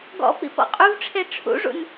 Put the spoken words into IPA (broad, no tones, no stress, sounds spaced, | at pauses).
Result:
ɡ ɔ̰ p ḭ p ɔ̰ qʼ u v ʈ͡ʂʰ e ʈ͡ʂʰ ṵ ʐ ṵ n